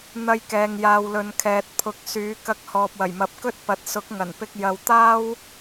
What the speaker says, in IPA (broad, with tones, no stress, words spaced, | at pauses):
n̪ɐ˧jkɛː˨ŋjaː˨wlɵ˨n kʰɛː˨t̚pʰʊ˨˥k̚ syː˨˥kɐ˧k̚ hɔː˨p̚wɐ˨˩jmɐ˨˥p̚kɵ˥t̚ pɐ˨t̚sʊ˨˥k̚ ŋɐ˨˩npɪ˧k̚ jɐ˨wt̪aː˥w